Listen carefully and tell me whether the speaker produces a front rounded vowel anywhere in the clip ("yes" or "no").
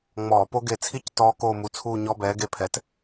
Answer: no